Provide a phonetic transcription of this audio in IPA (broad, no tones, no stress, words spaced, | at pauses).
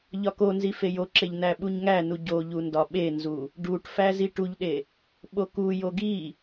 ʎɒkonzi fejoǁeʎ næɓuɲŋænu ɟoʎu ndɒɓenzu | ɖuʈfæ ziʈuʎɗe | ɓokujo ɡi